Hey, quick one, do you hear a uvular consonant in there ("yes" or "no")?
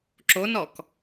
no